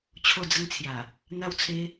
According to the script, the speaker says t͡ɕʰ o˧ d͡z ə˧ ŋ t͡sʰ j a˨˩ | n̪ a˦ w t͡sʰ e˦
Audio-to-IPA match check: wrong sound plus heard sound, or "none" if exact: none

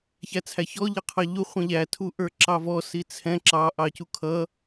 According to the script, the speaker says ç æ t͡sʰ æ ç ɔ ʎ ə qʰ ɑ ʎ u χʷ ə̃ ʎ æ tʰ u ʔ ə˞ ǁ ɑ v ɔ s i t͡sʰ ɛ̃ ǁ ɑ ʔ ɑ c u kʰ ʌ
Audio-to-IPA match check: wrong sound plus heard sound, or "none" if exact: none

